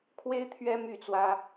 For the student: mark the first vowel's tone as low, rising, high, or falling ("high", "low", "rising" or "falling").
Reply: high